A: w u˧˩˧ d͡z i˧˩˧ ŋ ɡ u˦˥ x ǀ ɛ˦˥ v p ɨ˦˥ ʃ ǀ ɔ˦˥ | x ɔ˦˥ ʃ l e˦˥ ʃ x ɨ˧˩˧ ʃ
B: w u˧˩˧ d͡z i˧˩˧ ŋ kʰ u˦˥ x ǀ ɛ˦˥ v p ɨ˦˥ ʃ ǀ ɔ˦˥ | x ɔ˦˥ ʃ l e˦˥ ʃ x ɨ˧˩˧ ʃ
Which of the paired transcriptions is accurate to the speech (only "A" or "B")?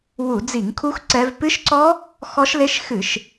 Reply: B